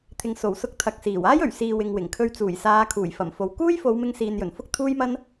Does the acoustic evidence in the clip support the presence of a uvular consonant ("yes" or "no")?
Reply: no